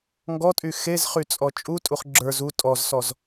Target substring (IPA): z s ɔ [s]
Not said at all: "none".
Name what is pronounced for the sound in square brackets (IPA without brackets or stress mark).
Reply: z